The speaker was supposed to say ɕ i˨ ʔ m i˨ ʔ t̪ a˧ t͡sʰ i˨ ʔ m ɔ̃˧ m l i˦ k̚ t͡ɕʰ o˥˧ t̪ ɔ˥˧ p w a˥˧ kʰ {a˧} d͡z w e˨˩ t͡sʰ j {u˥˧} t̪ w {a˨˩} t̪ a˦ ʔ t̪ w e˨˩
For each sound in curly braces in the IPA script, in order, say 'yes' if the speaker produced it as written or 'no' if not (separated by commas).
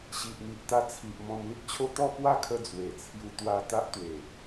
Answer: no, no, no